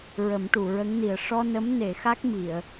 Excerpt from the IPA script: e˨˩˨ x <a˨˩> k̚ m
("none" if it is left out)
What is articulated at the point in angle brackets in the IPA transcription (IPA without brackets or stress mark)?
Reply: a˦˥